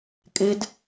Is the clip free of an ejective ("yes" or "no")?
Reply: no